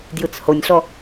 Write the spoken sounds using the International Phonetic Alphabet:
d j ɯ t͡s h o nʲ ɬ ɔ

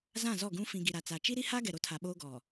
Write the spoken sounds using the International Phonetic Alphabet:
z ã˦˨ z ɔ˦˨ ɡ ũ˦ f ĩ˨ ɡ i˨ ɾ a˨ t͡s a˨ t͡ʃ i˦ ɾ i˦ h a˦ ɡ ɛ˨ ɾ o˦ tʰ a˨ ɓ oː˦ ɡ ɔ˨

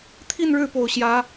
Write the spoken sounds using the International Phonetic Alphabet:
t̪ʰ i˥˧ n ɻ ɻ̩˥˩ p o˨˩ ʊ̯ ɕ j ä˧˥

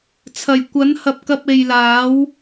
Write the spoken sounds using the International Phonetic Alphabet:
t͡sʰ ɐ˨˩ j kʷ ɐ˨˥ n h ɐ˨ p̚ k ɐ˧ p̚ e˨ j l aː˨˥ w

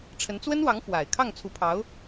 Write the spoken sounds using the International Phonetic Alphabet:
ʈ͡ʂʰ ə˧˥ n t͡s w ə˥ n w ɑ˧˥ ŋ f w a˨˩ ɪ̯ kʰ ɑ˥˩ ŋ t͡sʰ u˧˥ pʰ ɑ˧˥ ʊ̯

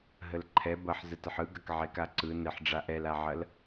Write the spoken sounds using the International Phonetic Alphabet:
ɦ ə l ǃʰ ɛ b ɐ ħ z ə t ə ħ ɯ ɡ ɐ k ʕ e k a ǀ ɯ n ɘ ħ ɖ͡ʐ a ʔ ɛ l a ʕ ɐ l

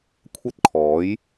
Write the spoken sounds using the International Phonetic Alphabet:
kʷʰ ɐ˥ t̚ kʰ ɔː˨˥ j

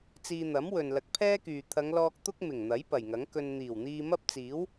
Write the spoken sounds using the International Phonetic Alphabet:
t͡s iː˧ n̪ ɐ˨˥ m w ɵ˨ n l ɐ˨˥ k̚ pʰ ɛː˥ k yː˨ t̪ʰ ɐ˨˧ ŋ l ɔː˧ k̚ t̪ ʊ˥ k̚ m ɪ˨˩ ŋ n̪ ɐ˨˥ j p ɐ˨˩ j ŋ ɐ˨˥ ŋ k ɵ˧ n n̪ iː˨˩ w n̪ iː˧ m ɐ˥ p̚ t͡s iː˨˥ w

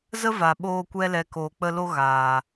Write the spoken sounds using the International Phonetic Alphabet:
z ə˦ v a˨ ɓ oː˧ kʷ ɛ˦ l ɛ˧ k oː˧ k͡p ə˧ l o˧ ɣ aː˨

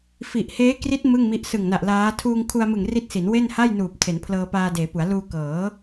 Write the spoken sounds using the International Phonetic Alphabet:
f i˨˩ ʔ h eː˦˥ k r i˦˥ t̚ m ɯ˥˩ ŋ m i˦˥ ʔ s ɯ˨˩ ŋ n a˨˩ ʔ l aː˦˥ tʰ uː˧ ŋ kʰ u˧ a̯ m ɯ˨˩ ŋ r i˦˥ t̚ s i˩˦ n w e˥˩ n h a˥˩ j n uː˨˩ p̚ tʰ e˩˦ n pʰ l ɤː˧ p aː˧ d eː˩˦ p u˩˦ a̯ l uː˧ k ɤː˩˦

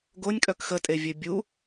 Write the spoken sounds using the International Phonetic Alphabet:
ɡ o nʲ kʼ œ k x ə tʼ e vʲ ø bʲ u

